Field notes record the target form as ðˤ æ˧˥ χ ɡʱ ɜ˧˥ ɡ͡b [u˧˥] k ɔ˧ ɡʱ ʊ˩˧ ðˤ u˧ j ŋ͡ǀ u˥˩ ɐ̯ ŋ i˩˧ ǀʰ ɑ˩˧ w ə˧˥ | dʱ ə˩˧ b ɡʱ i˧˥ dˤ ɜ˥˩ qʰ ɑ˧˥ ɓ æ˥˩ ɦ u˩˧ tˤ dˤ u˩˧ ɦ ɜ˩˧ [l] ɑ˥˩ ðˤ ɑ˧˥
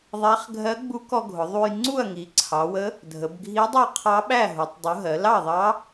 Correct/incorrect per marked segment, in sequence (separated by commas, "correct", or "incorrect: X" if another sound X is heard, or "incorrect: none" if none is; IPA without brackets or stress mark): correct, correct